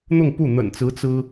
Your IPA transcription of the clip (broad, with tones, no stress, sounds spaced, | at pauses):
n̪ ʊ˥˧ ŋ p u˥˩ n̪ ə̰˨˩ n t͡s ɹ̩˧˥ t͡s ɹ̩˥